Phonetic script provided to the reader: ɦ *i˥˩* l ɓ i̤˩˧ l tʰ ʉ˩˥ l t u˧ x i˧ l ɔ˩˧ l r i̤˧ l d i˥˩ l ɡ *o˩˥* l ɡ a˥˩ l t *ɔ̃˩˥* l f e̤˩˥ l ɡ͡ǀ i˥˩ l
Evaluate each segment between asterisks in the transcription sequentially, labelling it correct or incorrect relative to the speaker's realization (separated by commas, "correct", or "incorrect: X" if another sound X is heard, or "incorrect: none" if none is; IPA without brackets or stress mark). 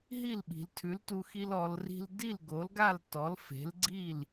correct, correct, incorrect: ɔ˩˥